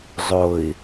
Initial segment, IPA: zˤ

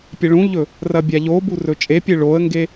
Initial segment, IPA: pʲ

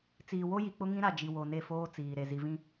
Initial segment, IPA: t͡s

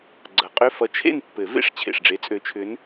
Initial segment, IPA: ɡ͡ǀ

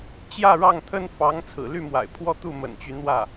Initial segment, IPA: t͡ɕ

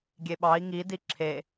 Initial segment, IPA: ɡʲ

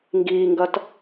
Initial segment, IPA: ŋ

